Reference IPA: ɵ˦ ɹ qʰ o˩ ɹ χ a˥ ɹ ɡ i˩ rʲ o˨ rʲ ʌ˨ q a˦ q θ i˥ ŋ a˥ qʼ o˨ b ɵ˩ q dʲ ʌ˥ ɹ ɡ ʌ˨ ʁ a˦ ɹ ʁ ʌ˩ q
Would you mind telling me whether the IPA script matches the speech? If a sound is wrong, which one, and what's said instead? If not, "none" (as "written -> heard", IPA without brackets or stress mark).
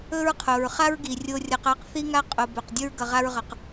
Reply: none